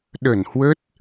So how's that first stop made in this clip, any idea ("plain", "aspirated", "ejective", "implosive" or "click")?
implosive